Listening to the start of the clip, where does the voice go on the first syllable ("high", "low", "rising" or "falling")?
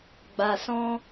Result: low